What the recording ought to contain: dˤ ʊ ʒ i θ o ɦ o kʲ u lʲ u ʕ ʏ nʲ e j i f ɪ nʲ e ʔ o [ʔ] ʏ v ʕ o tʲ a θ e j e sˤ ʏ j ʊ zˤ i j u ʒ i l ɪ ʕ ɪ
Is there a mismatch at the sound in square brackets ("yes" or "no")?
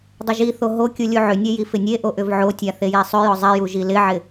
no